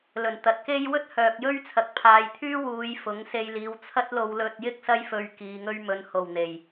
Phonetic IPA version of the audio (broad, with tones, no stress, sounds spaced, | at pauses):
l ɵ˨˩ n t̪ ɐ˨˥ t̚ k e˥ j w ɵ˥ t̚ h œː˨ k̚ j ɵ˥ ɥ t͡sʰ ɐ˨ k̚ pʰ aː˨ j t̪ʰ yː˥ w uː˨˧ j f ʊ˨˥ ŋ s e˧ j l iː˨˧ w t͡sʰ ɐ˥ t̚ l o˧ w l ɵ˧ t̚ j ɪ˥ k̚ s ɐ˥ j f ɵ˧ ɥ k iː˨ ŋ ɵ˧ ɥ m ɵ˨ n h o˨˩ w n̪ e˨˩ j